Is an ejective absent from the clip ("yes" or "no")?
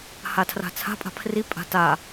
no